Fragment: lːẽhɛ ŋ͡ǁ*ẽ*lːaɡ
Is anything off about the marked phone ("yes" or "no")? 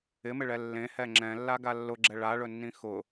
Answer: yes